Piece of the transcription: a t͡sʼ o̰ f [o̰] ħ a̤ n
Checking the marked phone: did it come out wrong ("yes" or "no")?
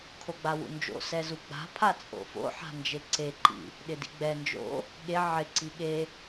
no